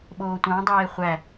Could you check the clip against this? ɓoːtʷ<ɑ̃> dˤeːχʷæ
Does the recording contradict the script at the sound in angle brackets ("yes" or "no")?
no